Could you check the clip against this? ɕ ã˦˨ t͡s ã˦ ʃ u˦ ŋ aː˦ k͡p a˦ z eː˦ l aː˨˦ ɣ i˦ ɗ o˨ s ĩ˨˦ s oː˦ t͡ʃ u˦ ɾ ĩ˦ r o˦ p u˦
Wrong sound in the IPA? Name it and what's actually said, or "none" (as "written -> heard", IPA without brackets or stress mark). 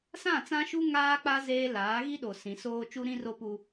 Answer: ɕ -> s